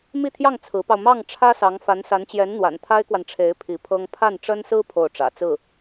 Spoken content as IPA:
m i˥˧ t̪ʰ j ɑ˥˩ ŋ t͡sʰ ɹ̩˧˥ p ɑ˧ ʊ̯ m ɑ˥˩ ŋ ʈ͡ʂʰ ä˥ s ɑ˧˥ ŋ f a˧˥ n s a˧˥ n t͡ɕ j ɛ˧˥ n n̪ w a̰˨˩ n t̪ʰ a˥ ɪ̯ k w a˨ n ʈ͡ʂʰ e˧˥ ɪ̯ pʰ i˧˥ pʰ ɤ˥ ŋ pʰ a˥˩ n ʈ͡ʂ ə˥ n s ɹ̩˥ pʰ o˥˩ ʊ̯ ʈ͡ʂ ä̰˨˩ t͡s ɹ̩˥˩

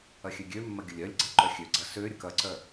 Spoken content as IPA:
ɐ xʲ ø ɡʲ ø mː ɐ ɡʲ ə lʲ œ lʲ ɡ͡ǀ ɐ ǃ œ xʲ ø ɡ͡ǀ ɐ s ø ɾʲ ə k ɐ ǀ œ

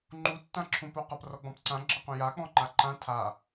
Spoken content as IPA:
ŋ͡ǃ u tː ã ǁʰ ũ p o q ʌ p r ɔ ɡ͡b ɔ̃ p ǀ ã ɡ͡ǁ ʌ q ũ j a k͡p ɔ̃ ŋ͡ǃ a ǃ ã tʰ a

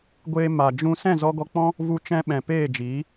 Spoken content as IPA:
ɡʷ eː˧ m a˨ d͡ʒ ũ˧ s ɛ̃˦˨ z ɔ˧ ɡ ɔ˧ k͡p ɔ̃˦ | v u˧ t͡ʃ ɛ̃˧ ɓ ɛ̃˨ p eː˦˨ d͡ʒ iː˨˦

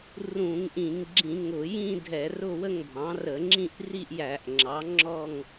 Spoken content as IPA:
r ũ˧˩˧ ŋ ʔ ĩ˧˩˧ ŋ ɡ͡ǁ ĩ˧˩˧ ŋ ʊ˧˩˧ j ĩ˥˧ dʱ ɛ˧˩˧ r ʊ˥˧ w ə˥˧ ŋ bʱ ɑ̃˩˥ r ə˧˩˧ ŋ͡ǁ ĩ˥˧ ʔ r i˥˧ ʔ j æ˧˩˧ ʔ ŋ͡ǁ ɑ˩˥ ŋ͡ǁ ɔ˥˧ ŋ

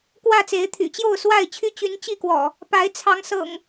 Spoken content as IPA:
k w ä˥˨ t͡s e˨˦ ɪ̯ t̪ʰ y̰˨˩ t͡ɕ j o˥˨ ʊ̯ s w a˥˨ ɪ̯ t͡ɕʰ y˦ t͡ɕ y˨˦ n t͡ɕ i˥˨ k w ɔ̰˨˩ | p a˨˦ ɪ̯ t͡sʰ ɑ˨˦ ŋ s ɤ̰˨˩ ŋ

